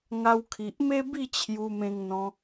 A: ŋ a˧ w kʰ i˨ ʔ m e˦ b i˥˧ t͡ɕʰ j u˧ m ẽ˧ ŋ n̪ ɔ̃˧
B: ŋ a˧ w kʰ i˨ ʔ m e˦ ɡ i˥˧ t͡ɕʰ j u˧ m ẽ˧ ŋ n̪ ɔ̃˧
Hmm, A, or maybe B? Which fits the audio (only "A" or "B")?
A